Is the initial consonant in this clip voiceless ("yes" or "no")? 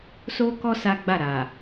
yes